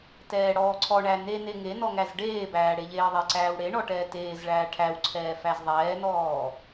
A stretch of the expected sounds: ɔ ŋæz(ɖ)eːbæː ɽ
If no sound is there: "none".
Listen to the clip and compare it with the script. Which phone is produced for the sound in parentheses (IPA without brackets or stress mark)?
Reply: ɖ